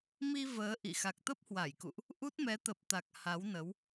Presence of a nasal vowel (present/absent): absent